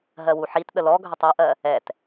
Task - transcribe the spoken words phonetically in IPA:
ɦ ɜ w u ħ i t ɗ ə l ɔ ɡʱ ə tˤ ʌ ʔ ɜ | ɛ t

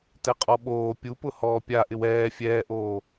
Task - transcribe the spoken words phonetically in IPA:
t ɛ qʼ ɔ ɓ oː pʲ u p ʊ h ɔː pʲ a ʔ ɪ w ɛː fʲ ɛː ʔ oː

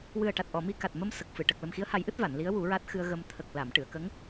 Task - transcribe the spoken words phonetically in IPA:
w ɨ˨˩ ə̯ ʈ a˨˩ t̚ ʔ ɔ˨˩˨ m i˧ k a˨˩ t̚ m ə˧ m s ə˨˩ k̚ f ɨ˨˩˨ ʈ ə˨˩ k̚ l ə˨˩ m x i˧˥ ə̯ h a˨˩˦ j ʔ ɨ˦˥ t̚ v a˨˩˨ n l i˧˥ ə̯ w u˨˩˦ ɹ a˦˥ t̚ x ɨ˧ ə̯ ɣ ə˧ m t̪ʰ ə˨˩ k̚ l a˨˩˨ m ʈ ɨ˨˩˨ ə̯ k ə˧˥ ŋ

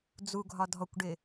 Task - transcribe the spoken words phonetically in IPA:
d͡z u ɡʱ ɒ dʱ ɔ kʷ ɖ ɪ

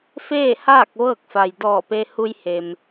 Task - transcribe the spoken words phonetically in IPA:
f eː˥˨ h aː˥˨ k̚ ʋ ɤː˥˨ k̚ f a˩ j d ɔː˧˩ p e˧ h u˧ j h e˩ m

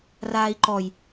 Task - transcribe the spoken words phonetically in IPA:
r aː i̯ ǃ ɔ j

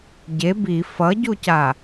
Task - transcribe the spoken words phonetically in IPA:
ɟ e b i f ʌ ɟ u c a

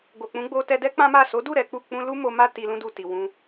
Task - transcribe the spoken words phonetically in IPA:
ɡ o˨ k͡p ũ˨˦ ɡ͡b o˧ t ɛ˧ d ɛ˦ k͡p ã˦ m a˦˨ s o˨˦ d u˦˨ ɾ ɛ˨˦ k͡p u˦˨ k͡p ũ˧ l u˦ m o˧ m a˦ t i˧ l ũ˦ d u˧ t i˨ w ũ˧

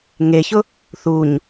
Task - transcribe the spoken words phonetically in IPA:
ŋ e ç ʊ | θ u ɲ

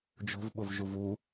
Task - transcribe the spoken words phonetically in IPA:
d͡ʒ o̤ v ɓ ʊ v ʒ u v u

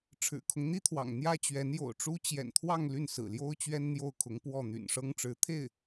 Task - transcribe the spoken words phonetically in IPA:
ʈ͡ʂʰ ɻ̩˨˩ kʰ ʊ˦ ŋ n̪ i˥ t̪ʰ w ɑ̰˨˩ ŋ n̪ j ä˥ t͡ɕ ɥ ɛ˧˥ n j o̰˨˩ ʊ̯ ʈ͡ʂ u˥ t͡ɕ j ɛ̰˨˩ n t̪ʰ w ɑ˥˧ ŋ l y˥˩ n s ɹ̩˨˩ l j o˥ ʊ̯ t͡ɕ ɥ ɛ˥ n n̪ j o˥˩ ʊ̯ kʰ ʊ˧˥ ŋ p w ɔ˥˩ n̪ y̰˨˩ n ʂ ɤ˥ ŋ ʈ͡ʂ ɻ̩˧˥ t̪ʰ e˥˩ ɪ̯

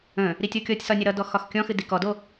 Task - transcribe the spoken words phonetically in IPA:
ə̃ | ɾ i tʲ ɔ kʲ ɔ tʲ s ɒ nʲ ə ɾ ʌ d ɔ x ɒ x kʲ ɔ̃ x ɨ d i k ɔ d o

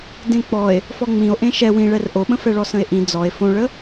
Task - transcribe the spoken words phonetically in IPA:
d ẽ k͡p ɔ e̯ | f ɔ ŋ͡m ĩ o̯ ʔ ẽ ʃ ɛ w ĩ ɭ ɛ r ʔ o ɓ ə̃ f ɛ ɭ ɔ s ə̃ e̯ ʔ ĩ d͡z ɔ e̯ f õ ɭ ə

